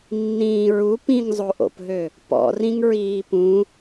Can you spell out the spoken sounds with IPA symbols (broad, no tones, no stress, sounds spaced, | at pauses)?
nː ĩː ɹ u p ĩ ŋ zˤ o ʔ o̰ p ɦ ø | p ɔ̰ r ĩ ŋ ɹ iː p ũ